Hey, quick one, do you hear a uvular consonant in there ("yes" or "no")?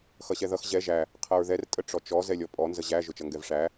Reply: yes